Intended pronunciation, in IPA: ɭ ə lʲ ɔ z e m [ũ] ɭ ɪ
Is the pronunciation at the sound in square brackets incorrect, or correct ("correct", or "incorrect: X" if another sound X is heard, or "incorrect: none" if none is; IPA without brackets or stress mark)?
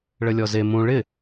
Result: correct